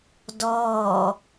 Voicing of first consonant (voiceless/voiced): voiced